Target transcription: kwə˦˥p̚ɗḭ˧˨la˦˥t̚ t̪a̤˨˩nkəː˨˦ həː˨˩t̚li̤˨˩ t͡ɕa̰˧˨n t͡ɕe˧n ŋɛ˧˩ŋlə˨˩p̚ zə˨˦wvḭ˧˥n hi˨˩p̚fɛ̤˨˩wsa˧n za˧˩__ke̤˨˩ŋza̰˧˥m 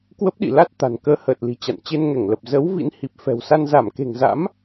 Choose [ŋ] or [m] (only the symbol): m